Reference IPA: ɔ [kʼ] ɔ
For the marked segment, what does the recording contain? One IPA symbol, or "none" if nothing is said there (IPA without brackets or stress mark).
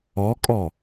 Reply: kʼ